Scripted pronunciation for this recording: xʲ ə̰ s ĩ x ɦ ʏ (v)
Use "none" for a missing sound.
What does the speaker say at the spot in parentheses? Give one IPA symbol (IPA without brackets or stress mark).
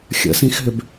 b